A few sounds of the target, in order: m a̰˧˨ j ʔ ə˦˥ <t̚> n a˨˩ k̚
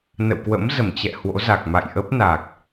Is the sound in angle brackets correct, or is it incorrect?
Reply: incorrect